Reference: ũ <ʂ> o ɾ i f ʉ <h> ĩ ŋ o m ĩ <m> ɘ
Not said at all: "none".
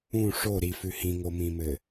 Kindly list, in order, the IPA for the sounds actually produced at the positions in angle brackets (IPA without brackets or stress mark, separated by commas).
ʂ, h, m